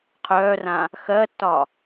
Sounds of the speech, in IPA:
qʰ œː r ã | x ɜ tː ɒ

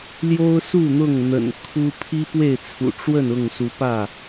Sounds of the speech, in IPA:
l j o˦ ʊ̯ s u˥˨ n̪ ʊ˥˨ ŋ n̪ ə̰˨˩ n kʰ u˦ pʰ i˦ p w e˥˨ ɪ̯ t͡sʰ ṵ˨˩ ʈ͡ʂ w ə˥˨ n ʊ˥˨ ŋ s u˨˦ p ä˥˨

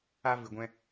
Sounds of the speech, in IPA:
a˧ v ɨ˨ ɡʷ ɛ̃˧

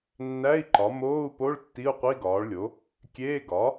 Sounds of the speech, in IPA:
nː æ˧˥˧ i̯ ǃ ɒ˩˥ m oː˧˥˧ u̯ p o˧˥˧ ɭ tː i˧˥˧ u̯ qʷ i˧˥˧ ɡ ɒː˩˥ ɭ lʲ o˩˥ | kʲ eː˧˥˧ ɡ ɒ˩˥

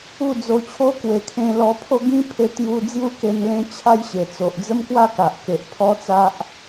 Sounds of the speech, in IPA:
u˥˧ d͡z o˧ t͡ɕʰ o˦ k w e˨˩ kʰ ẽ˧ l ɔ˧ pʰ o˦ ɡ ĩ˦ pʰ e˧ t̪ j u˧ d͡z j u˦ k e˧ n l ẽ˦ t͡ɕʰ a˦ j ɕ e˨˩ t͡s o˨ ʔ d͡z ə˦ m k w a˥˧ k a˨ ʔ k e˨ ʔ pʰ ɔ˦ t͡s a˦ ʔ

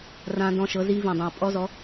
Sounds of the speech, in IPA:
r ã˦˥ d ɔ̃˦˥ ʃ ɤ˨˥ z i˦˥ v ĩ˨˩ dˤ ĩ˨˩ u̯ pʼ ɔ˦˥ z ɔ˨˥

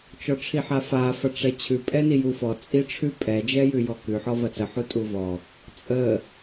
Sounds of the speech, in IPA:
t͡ʃ ɔ ʈ͡ʂʰ i ħ a f a f ɐ ʈ͡ʂ ɛ t͡ɕʰ ʉ pʼ ɛ n i j u f ɔ t͡sʼ i ʈ͡ʂʰ ʉ pʼ ɛ d͡ʒ ɛ j ʉ j ɔ k ʉ ħ ɔ v ɐ t͡s ə ħ u tʼ u v ɔ | t͡sʼ ə

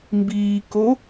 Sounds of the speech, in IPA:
m b iː k o

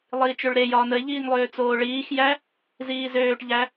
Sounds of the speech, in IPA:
lˠ iː t͡ʃ ø ɭ ɾ e j ɒː n ə ɪ̯ ʎ iː ŋ lˠ øː t͡s oː ɭ iː x j æ | z iː z øː ʈ ʎ æ

